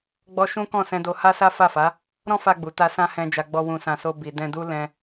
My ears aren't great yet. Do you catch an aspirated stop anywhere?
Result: no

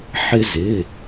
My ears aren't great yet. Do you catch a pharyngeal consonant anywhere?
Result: yes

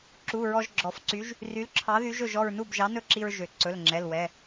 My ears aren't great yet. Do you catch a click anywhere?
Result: yes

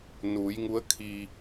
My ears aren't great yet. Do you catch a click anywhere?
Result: no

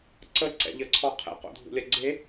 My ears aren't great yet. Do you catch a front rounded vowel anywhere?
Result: no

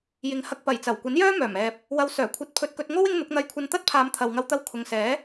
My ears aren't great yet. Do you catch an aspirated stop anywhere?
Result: yes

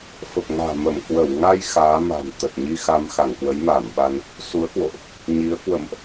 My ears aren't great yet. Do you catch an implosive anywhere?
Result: yes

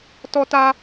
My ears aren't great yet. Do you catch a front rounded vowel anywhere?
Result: no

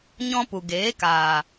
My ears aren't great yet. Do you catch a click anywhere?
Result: no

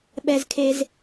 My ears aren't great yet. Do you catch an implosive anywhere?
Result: yes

